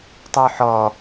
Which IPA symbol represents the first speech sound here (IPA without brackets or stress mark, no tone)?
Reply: tˤ